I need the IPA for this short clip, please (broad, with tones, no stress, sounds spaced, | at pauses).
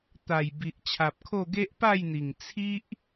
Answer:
t̪ a˨˩ j b i˨ ʔ t͡ɕʰ a˨ p̚ kʰ o˥˧ ɡ e˦ ʔ p a˥˧ j n̪ i˨˩ ŋ t͡sʰ i˦ ʔ